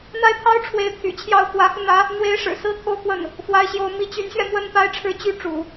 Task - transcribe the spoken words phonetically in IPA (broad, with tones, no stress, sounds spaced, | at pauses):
n̪ a˥ ɪ̯ t̪ʰ ɑ˥ ʊ̯ ʈ͡ʂʰ w e˧˥ ɪ̯ t̪ʰ y̰˨˩ t͡ɕʰ j ɑ˥˩ ʊ̯ x w ä˧˥ x u˧ n̪ ä˧˥ | n̪ w e˧˥ ɪ̯ ʂ ɻ̩˨˩ s ɹ̩˥ t̪ʰ o˥˧ ʊ̯ k w ə˥˩ n | f w a˥ ɪ̯ ɕ j o˥ ʊ̯ m i˧˥ t͡ɕ y˧˥ n ɕ ɥ ɛ˧ m w ə˥˧ n p a˥˧ ɪ̯ ʈ͡ʂʰ ɻ̩˥˩ t͡ɕ y˥ ʈ͡ʂ ṵ˨˩˦